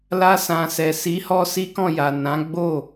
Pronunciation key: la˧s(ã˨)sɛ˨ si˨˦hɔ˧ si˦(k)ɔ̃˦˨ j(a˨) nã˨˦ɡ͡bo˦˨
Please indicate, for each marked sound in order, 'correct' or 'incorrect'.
correct, correct, correct

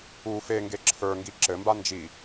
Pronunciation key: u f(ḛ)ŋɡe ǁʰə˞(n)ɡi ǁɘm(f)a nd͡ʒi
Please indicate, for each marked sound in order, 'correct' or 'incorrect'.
incorrect, incorrect, incorrect

